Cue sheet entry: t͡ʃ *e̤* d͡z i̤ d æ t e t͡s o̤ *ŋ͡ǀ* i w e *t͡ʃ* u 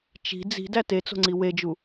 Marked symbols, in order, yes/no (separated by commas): no, yes, no